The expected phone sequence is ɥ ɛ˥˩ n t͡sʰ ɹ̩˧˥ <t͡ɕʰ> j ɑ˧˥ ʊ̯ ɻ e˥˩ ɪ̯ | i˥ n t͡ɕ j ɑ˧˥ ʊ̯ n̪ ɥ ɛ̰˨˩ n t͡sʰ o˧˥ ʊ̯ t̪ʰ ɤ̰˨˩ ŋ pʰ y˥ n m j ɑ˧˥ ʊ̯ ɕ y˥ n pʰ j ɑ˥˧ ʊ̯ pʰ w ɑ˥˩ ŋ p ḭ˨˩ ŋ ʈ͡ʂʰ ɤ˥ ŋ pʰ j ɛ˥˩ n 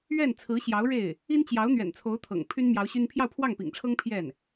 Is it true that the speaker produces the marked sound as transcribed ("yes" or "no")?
no